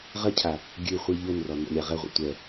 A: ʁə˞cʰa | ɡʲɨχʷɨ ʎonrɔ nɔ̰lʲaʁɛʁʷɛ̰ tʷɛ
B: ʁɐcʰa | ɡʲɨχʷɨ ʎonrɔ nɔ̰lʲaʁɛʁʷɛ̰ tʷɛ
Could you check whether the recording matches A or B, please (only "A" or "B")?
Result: B